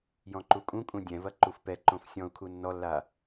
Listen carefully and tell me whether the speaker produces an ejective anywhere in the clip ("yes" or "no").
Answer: yes